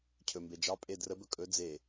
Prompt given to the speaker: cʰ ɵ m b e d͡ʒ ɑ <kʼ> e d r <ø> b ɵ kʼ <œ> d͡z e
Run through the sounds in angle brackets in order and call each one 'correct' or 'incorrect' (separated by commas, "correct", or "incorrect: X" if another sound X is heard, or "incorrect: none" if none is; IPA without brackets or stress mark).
incorrect: pʼ, incorrect: ə, incorrect: ɵ